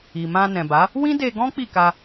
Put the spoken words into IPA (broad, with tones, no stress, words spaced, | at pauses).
i˨ mã˧nɛ̃˨ba˨˦ | wĩ˦de˧ɡɔ̃˦ k͡pi˦˨ka˧